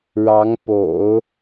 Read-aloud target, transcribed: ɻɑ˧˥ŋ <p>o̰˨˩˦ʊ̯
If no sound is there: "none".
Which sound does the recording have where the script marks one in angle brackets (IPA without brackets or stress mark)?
p